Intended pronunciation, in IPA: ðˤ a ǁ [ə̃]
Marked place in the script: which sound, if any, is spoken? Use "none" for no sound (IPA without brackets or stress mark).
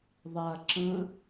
ə̃